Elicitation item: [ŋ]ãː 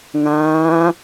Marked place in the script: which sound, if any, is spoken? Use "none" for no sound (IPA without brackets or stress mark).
ŋ